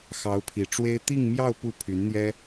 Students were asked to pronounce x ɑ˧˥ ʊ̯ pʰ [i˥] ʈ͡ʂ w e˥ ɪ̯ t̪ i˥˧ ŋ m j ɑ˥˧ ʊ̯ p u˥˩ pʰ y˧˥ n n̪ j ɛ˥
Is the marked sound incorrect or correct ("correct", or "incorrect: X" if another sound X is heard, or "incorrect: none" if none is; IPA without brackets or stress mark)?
incorrect: i˨˩